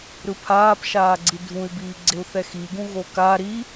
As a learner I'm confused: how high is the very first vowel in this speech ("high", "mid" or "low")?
high